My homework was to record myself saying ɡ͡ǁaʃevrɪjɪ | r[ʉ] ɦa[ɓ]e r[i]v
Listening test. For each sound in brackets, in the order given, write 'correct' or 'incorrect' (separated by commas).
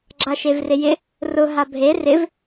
incorrect, incorrect, incorrect